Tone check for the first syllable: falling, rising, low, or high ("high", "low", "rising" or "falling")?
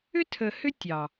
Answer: high